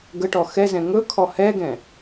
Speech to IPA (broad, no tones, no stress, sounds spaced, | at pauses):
ɡ ə ʈ ɔ x ɛ z ɛ̃ ŋ ɵ kʰ ɔ h ɛ ɡ ɛ̃